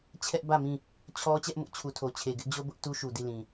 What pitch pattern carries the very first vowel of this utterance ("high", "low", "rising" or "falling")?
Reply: high